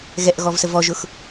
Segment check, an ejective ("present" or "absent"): absent